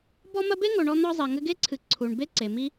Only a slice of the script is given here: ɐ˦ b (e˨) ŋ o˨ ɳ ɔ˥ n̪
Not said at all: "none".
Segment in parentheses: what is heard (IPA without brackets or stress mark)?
e˥